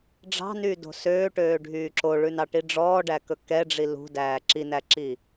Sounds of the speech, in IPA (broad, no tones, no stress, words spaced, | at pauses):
ɖ͡ʐɑ̤nyːdo̤ søːʈøːɖʱyː ǁoɭʉnɑʈi ɖ͡ʐɔːɖækɵ kɛɖ͡ʐi lṳdæː ǁinæǁi